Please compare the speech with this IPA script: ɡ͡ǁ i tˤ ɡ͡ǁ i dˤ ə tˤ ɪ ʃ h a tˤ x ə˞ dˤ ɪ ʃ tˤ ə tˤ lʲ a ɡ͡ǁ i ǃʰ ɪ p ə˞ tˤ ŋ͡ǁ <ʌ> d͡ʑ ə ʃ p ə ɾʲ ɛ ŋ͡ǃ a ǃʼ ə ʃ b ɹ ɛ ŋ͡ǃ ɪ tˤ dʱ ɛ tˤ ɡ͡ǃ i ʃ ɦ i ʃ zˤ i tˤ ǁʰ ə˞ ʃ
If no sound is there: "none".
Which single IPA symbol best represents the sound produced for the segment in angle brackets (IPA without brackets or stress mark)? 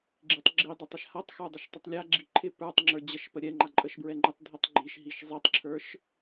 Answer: ə˞